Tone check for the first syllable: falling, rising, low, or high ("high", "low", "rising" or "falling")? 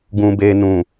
low